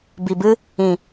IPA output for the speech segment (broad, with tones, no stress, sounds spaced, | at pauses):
b i˨ b ɨ˦ | ĩ˨